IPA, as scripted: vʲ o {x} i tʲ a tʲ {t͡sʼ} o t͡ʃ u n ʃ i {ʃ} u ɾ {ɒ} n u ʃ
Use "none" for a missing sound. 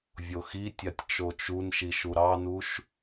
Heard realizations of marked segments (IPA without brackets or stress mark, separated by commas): x, t͡ʃ, ʃ, ɑ